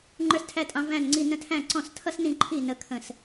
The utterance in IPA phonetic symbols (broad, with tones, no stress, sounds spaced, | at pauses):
ŋ͡ǃ ə˞˥ s tʰ æ˥ tʼ ɑ̃˥ v æ̃˥˩ n ŋ͡ǀ i˥˩ n ə̃˥ tʰ æ̃˥˩ ǀ ɔ̃˥˩ s tʰ ʌ˥ s n ĩ˥˩ ǃʰ i˥˩ n ə˥ kʰ ə̃˥˩ s